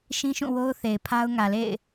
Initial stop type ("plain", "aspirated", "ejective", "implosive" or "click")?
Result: aspirated